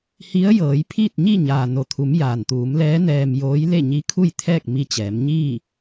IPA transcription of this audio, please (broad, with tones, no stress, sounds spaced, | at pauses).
h i˧˥ ə̯ j ɤː˩˧ j pʰ iː˥˨ t̚ ɲ i˥˨ ɲ aː˩ n o˩ t̪ʰ u˩˧ m j aː˩ n t̪ uː˩˧ m l ɛː˧˥ n ɛː˧ m j oː˧˥ j l e˥˨ ɲ i˧˥ kʰ u˥˨ j t̪ʰ ɛː˥˨ k̚ m i˧ t͡ɕ ɛː˩˧ m ɲ iː˥˨